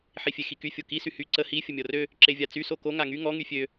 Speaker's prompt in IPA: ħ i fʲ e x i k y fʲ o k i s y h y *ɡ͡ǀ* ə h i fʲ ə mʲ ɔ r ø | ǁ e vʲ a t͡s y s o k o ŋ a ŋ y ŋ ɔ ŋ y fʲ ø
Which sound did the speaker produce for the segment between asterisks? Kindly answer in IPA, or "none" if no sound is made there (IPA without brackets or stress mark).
ǀ